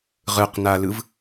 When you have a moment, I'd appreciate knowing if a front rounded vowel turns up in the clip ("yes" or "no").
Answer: no